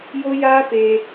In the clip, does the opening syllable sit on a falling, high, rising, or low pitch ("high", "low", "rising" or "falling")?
high